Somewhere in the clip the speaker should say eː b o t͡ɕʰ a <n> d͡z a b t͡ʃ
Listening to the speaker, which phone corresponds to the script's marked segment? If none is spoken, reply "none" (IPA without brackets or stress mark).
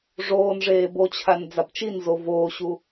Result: n